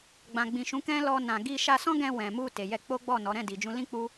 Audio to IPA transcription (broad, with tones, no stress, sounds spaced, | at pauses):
ɡ͡b ã˨ ɡ͡b ĩ˨ ʃ ũ˨˦ k ɛ̃˦ l ɔ˧ n ã˨ ɡ i˧ ʃ a˧ s ɔ̃˦ ɡ ɛ̃˧ w ɛ̃˨ m u˧ t e˨ j ɛ˧ k͡p o˦ ɡ͡b ɔ˦˨ n ɔ˨˦ ɾ ɛ̃˦˨ d i˨ d͡ʒ ũ˧ l ĩ˦ k͡p u˦